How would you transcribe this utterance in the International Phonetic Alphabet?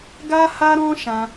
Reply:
ɡ a˦ h a˦ ɾ ɔ̃˦ ʃ ã˦

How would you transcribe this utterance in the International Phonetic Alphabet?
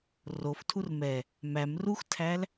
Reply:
r o f tʰ u r m ɛ | m æ m r u x tʰ æ l

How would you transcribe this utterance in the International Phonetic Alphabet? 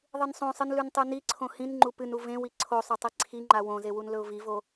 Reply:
ðˤ ɨ n sˤ õ sˤ ɨ n l ʉ n tˤ ʉ n i ǀʰ õ h ĩ n ŋ͡ǃ u p ɨ n u v ẽ w i ǀʰ o sˤ ɵ tˤ i ǀʰ i ŋ͡ǃ a w õ z e w u n l ɵ ʊ̯ v i v o

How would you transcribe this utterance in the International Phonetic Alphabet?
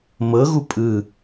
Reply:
m ɤ ɣ u pʼ ɯ

